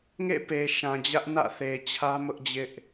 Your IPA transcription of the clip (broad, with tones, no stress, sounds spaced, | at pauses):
ŋ ḛ˦˨ p e˨ ʃ ã˨ d͡ʑ ä˦ ʔ n ä̰˦˨ θ e˨ t͡ɕʰ ä˦ m ʊ˦ ʔ d͡ʑ ɪ˦ ʔ